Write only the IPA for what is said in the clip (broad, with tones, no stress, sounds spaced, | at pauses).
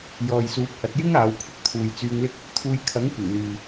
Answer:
j ɔː˨ j s uː˨˥ p̚ h ɐ˨˥ t̚ j ɪ˥ ŋ aː˨˧ w kʷʰ ɐ˨ k̚ t̪ʰ uː˨ j t͡s yː˧ ŋ l ɪ˥ k̚ | t̪ʰ uː˧ j kʰ ɐ˨˥ ŋ kʷ ɪ˨˩ ŋ l yː˨